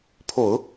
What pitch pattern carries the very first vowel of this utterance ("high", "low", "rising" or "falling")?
low